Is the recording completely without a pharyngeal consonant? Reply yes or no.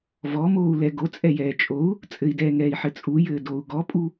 no